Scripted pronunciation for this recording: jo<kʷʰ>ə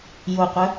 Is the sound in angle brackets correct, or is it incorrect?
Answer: incorrect